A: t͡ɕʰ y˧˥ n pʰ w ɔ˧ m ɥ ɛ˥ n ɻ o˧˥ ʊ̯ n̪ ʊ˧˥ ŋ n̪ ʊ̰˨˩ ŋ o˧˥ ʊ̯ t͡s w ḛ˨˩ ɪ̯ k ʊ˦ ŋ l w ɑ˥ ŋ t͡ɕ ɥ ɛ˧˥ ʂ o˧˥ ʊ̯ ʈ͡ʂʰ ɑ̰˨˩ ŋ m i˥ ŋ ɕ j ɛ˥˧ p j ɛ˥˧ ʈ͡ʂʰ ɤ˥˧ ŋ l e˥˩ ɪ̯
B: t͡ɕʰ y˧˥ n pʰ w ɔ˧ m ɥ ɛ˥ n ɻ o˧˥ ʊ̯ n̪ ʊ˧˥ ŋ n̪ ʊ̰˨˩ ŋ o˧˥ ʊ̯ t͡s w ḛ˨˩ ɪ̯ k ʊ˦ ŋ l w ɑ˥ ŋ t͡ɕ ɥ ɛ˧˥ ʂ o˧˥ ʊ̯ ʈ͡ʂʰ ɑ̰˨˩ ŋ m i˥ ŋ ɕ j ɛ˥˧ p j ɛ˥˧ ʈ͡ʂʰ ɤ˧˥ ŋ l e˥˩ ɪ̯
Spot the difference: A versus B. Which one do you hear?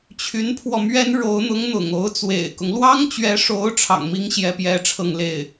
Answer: A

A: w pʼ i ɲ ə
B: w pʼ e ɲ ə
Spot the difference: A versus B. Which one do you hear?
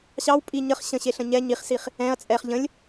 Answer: A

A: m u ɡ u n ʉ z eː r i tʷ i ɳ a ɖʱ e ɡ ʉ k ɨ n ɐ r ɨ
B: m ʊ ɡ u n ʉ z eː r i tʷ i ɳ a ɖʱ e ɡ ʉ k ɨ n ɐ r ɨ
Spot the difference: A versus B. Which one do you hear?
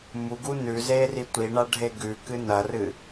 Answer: A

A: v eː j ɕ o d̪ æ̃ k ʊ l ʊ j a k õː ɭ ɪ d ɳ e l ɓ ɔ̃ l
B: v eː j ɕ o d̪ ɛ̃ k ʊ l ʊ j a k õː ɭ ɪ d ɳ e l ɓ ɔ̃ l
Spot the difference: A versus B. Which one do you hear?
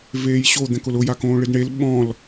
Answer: B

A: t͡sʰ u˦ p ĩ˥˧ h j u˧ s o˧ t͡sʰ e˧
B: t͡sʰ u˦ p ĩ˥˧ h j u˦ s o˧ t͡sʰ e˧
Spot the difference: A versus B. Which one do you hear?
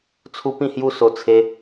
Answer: B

